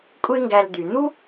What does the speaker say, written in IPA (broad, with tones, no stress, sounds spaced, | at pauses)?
kʷʼ e˥ ŋ ɡ æ˧ l d̪ y˩ n̪ u˥